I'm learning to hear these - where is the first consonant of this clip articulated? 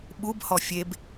lips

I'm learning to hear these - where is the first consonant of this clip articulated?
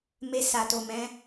lips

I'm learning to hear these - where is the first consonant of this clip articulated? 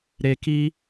tongue tip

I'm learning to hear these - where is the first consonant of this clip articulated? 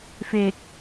lips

